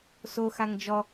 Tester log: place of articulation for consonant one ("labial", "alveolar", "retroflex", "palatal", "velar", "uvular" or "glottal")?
alveolar